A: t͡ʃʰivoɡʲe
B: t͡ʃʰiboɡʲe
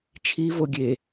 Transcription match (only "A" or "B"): A